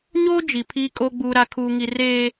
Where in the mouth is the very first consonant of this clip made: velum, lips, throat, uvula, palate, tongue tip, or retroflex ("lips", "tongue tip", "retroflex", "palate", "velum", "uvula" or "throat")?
palate